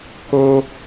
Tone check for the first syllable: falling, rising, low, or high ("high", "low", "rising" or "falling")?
high